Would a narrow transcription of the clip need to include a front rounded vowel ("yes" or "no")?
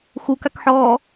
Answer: no